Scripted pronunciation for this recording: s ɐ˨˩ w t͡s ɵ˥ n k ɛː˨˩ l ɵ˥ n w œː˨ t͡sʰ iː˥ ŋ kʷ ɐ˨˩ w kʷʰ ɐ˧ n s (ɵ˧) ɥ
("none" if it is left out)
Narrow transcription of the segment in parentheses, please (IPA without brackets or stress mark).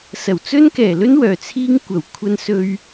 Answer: ɵ˧